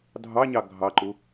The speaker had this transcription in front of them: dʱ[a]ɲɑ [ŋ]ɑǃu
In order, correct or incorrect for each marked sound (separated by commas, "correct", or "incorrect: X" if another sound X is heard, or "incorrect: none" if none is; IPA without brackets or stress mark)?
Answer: incorrect: ɑ, incorrect: ɡʱ